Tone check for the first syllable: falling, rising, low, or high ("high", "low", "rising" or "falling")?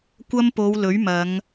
high